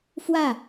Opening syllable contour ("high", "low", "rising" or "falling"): falling